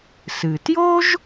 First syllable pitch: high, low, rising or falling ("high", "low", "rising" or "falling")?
low